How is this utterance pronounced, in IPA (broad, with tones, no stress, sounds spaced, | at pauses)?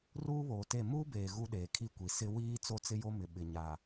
r uː˦ β oː˨ t e˦˨ m uː˦ b eː˨ ɣ u˦ ɗ eː˨ kʰ i˦ kʷ i˨ s ɪ˦ w iː˦ t͡s o˦ t͡s ɪ˦ j o˦ m ɪ˨ ɓ ɪ˨ ɲ a˨